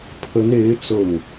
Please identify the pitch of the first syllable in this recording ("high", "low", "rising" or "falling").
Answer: rising